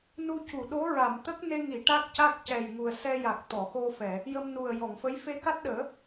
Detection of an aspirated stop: absent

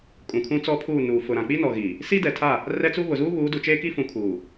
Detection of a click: absent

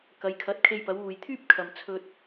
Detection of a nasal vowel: absent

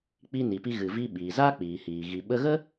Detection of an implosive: present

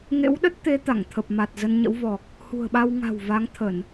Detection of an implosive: present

